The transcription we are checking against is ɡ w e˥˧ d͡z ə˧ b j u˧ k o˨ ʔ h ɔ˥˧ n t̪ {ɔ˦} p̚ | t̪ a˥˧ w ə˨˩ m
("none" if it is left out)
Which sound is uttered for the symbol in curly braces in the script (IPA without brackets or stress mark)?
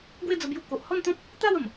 ɔ̃˦